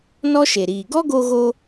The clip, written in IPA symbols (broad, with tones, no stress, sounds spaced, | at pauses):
n ɔ˦ ʃ e˨ ɾ iː˨ ɡ ɔ˦ ɡ o˧ ɣ o˧